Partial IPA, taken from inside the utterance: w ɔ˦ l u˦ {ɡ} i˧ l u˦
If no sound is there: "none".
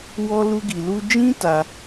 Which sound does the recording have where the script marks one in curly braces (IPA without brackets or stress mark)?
ɡ